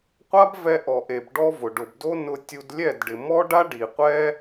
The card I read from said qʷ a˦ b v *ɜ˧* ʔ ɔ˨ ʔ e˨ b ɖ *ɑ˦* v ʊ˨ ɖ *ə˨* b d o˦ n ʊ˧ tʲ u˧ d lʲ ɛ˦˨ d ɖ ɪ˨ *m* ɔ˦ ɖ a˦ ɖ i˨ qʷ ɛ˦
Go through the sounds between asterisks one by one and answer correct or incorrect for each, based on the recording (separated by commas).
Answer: incorrect, incorrect, incorrect, correct